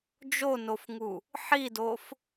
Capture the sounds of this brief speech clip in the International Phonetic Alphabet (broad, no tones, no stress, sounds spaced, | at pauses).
d͡ʒ o n o f ŋ u | ħ i d o f